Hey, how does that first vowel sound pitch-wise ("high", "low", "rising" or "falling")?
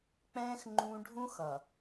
high